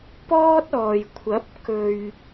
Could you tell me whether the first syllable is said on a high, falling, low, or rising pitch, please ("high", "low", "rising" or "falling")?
high